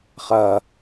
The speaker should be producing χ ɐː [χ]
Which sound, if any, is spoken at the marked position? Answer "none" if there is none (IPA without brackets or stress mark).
none